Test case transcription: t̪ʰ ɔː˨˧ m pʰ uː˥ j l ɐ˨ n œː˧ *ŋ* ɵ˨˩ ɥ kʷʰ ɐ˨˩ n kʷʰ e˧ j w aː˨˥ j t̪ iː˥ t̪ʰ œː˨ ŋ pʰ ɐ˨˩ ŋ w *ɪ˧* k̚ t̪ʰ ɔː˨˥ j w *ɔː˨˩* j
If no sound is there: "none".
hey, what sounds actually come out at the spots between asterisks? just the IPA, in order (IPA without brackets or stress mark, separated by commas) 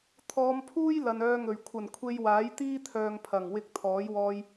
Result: ŋ, ɪ˧, ɔː˧